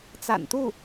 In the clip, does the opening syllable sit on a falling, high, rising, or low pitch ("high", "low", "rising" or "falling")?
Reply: low